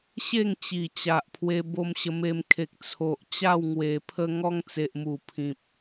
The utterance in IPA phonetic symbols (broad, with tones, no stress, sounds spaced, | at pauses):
ɕ e˥˧ ŋ t͡ɕ i˨˩ t͡ɕ a˨ ʔ pʰ w e˧ b o˧ m ɕ ə˧ m e˧ m kʰ e˨ k̚ t͡sʰ o˨ ʔ t͡ɕ a˥˧ w ŋ w e˨˩ pʰ ə˦ ŋ ɔ˦ ŋ t͡s e˨ ʔ m u˨˩ pʰ ĩ˨ p̚